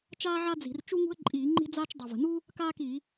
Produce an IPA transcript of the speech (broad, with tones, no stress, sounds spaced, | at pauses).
t͡ʃ aː˥ ʕ a˥ d͡z i̤˧˩˧ r t͡ʃ u˥ ŋ ṳ˥ ə̯ ǃʼ iː˧˩˧ ŋ͡ǃ i̤˥ d͡z aː˥ t͡ʃ dˤ ɤ˨˩ v ə̤˨˩ n u˥ | k aː˥ k i˧˩˧